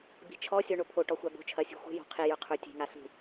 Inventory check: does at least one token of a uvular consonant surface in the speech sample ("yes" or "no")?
yes